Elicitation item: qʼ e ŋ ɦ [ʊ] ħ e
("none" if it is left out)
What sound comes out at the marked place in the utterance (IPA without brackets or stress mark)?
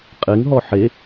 ɔ